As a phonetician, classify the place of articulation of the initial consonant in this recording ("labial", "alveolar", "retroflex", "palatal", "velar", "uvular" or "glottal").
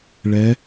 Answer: retroflex